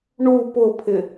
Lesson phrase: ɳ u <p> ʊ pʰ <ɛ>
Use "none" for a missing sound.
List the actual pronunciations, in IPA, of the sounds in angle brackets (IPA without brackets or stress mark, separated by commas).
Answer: p, ɪ